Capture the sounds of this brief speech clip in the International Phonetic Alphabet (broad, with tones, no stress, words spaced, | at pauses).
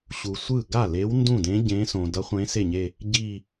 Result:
ɕu˨sʷɯ˥˩ ɡa˥˩le˧˥w ndũ˥˩dẽ˧˥ ɟẽ˧˥sõ˨ dʌ˧˥χʷẽ˧˥ se˥˩ɲe˥˧ | ɟi˥˧